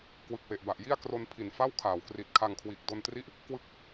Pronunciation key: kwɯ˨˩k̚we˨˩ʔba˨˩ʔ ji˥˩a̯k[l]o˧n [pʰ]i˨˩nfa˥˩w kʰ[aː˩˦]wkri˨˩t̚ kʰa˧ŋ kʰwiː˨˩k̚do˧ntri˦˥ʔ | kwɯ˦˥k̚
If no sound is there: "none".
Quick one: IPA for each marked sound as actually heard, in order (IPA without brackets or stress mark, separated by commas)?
r, pʰ, aː˩˦